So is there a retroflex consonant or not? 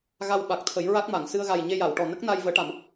yes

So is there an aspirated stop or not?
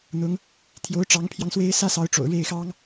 yes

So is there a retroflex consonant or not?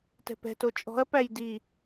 no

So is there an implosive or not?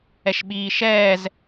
yes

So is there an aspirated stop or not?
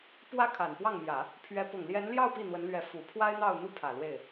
yes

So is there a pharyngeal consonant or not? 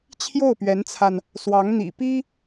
no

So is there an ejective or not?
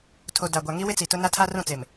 no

